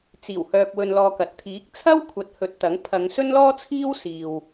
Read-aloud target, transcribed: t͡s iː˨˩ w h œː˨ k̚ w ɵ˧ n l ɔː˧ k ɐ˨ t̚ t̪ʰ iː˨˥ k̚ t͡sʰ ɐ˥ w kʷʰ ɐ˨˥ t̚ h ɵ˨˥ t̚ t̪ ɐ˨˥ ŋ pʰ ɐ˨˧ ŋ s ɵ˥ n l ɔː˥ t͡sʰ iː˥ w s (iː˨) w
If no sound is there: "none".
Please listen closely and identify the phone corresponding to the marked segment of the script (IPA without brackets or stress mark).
iː˨